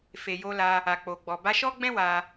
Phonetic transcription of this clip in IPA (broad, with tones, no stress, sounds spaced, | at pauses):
f e˨ j o˧ l a˧ | a˨ k͡p o˨ ɡ͡b ɔ˨ b a˧ ʃ ɔ˦ ɡ͡b ɛ̃˦ w a˧